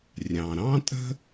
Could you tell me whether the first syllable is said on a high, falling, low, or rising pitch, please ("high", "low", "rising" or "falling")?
low